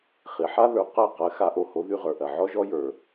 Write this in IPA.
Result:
χ i˩ ħ a˥ ð ə˞˩ q ɜ˥˩ q ɜ˧ x a˧ ʔ o˧ h o˩˥ ð y˧ ʁ ə˞˩ ʔ ɜ˩ ʕ ɔ˥ ʒ ɔ˥ j ə˞˩

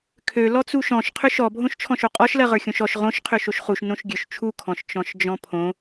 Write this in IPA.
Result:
kʰ ø l ɔ t͡s u ʃ ɔ̃ ʃ qʰ ø ʃ ɔ bʱ õ ʃ t͡ʃʰ ɔ̃ ʃ o qʼ ɔ ʃ l ɜ ʁ ə˞ xʲ õ ʃ ɔ ʃ ʁ õ ʃ qʰ ø ʃ o ʃ χ u ʃ n õ ʃ ɡʲ ø ʃ t͡ʃʰ u kʰ ɔ̃ ʃ t͡ʃ ɔ̃ ʃ d͡ʒ ɔ̃ pʰ õ

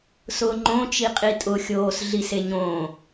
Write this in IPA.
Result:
s ʊː ŋ͡ǃ õ t͡ʃ i qʼ i tʼ ʊ xʲ oː s ɮ i s e ɲ õː

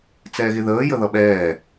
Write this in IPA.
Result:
t͡s ɛː ɣ ɪ ð əː j ə ð ʌ ɓ ɛː

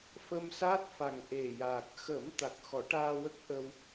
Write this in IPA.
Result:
f ə˧ m s aː˦˥ t̚ f a˨˩ ŋ ʔ e˨˩ j aː˨˩ k̚ x ə˨˩˦ m t̪ a˨˩ k̚ x ɔ˨˩˦ ʈ aː˧ w ə˦˥ k̚ ʔ ə˧ w

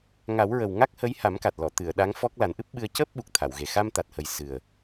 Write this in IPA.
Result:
ŋ a˨˩˦ w ɹ ə˨˩ w ŋ a˦˥ k̚ h ə˧˥ j h a˨˩˦ m k a˨˩ t̚ l ɔ˨˩˨ t̪ ɨ˨˩˨ ə̯ ɗ a˧˥ ŋ f ɔ˦˥ k̚ l a˨˩˦ n ʔ ɨ˦˥ p̚ ɓ ɨ˧ ə̯ c əː˦˥ p̚ ɓ u˨˩ k̚ t̪ʰ a˨˩˨ w ɣ e˨˩ x a˧ m t̪ a˨˩ t̚ h ə˨˩ j s ɨ˨˩ ə̯

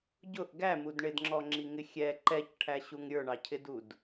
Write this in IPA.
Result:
ɟ ʊ ʔ ɡ æ m u d ɳ ɪ d ŋ͡ǁ ɔ ŋ͡ǁ i ŋ ɪ xʲ ɛ ǃ ɛ c ʈʰ æ ɕ u ŋ ɾʲ ə˞ ɳ ɑ cʰ ɪ d u d

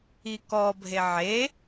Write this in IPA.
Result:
i k ɔ bʱ e ʕ e

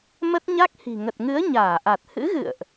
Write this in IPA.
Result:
m ə˦˥ t̚ ɲ a˦˥ k̚ h i̤˨˩ ŋ ə˨˩ t̚ ŋ ɨ˨˦ ə̯ ɲ aː˧˩ ʔ a˨˩ t̚ h ɨ̰˧˥ ɣ ɨ̰˧˨ ə̯ ʔ

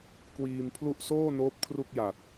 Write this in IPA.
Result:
k w iː˧ m pʰ l u˥˩ ʔ s oː˥˩ n oː˦˥ p̚ kʰ r u˥˩ k̚ j a˨˩ t̚

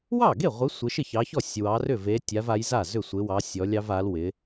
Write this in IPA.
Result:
w ɑ˥˩ ɡ e˥˩ ʁʷ ɪ˨˦ sʷ ɪ˨˦ ʃ ɪ˥˩ ç ɑ˨˦ ç ɔ˥˩ sʲ w ɑ˨˦ r ʏ˥˩ v e˨˦ tʲ a˨˦ v a˨˦ j z a˥˩ z ʏ˥˩ sʷ ɪ˨˦ w ɑ˨˦ sʲ ɔ˨˦ lʲ ɑ˨˦ v a˨˦ l w ɪ˨˦

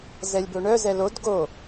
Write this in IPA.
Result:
z ɛ lʲ b o ɳ œ z ɛ l o d ɡ o

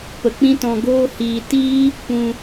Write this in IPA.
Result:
p ə˨ k͡p ĩ˦ t ɔ̃˧ ɡ oː˦ h iː˧ t iː˦ | p ũ˧

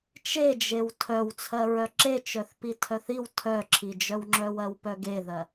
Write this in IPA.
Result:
t͡ʃ e d͡ʒ e w tʰ œ w t͡sʰ ɜ ɹ œ ǁ e t͡ʃ œ θ p i tʰ œ θ i w tʰ œ ǁʰ i d͡ʒ œ w ŋ͡ǁ œ w ɜ w p œ ɡ e ð ɜ

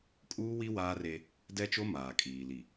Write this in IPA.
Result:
kʼ uː˦ w i˦ w aː˦ r e˦ | d ɛ˦ t͡ʃ o˦ m aː˨ kʼ iː˨ l i˨

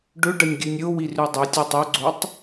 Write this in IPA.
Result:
ɖ ɵ ɖ ɐ nʲ ɡʲ ʉ nʲ ɾʲ o w i r ʉ dˤ ʉ tʲ u tˤ ʉ ɡ͡ǀ o tˤ

